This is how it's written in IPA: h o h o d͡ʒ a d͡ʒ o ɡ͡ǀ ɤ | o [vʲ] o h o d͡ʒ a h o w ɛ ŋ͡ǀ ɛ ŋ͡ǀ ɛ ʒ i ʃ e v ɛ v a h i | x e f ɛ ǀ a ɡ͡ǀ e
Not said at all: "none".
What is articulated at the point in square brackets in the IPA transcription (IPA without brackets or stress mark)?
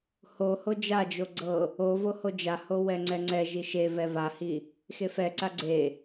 v